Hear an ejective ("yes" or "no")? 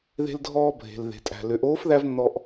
yes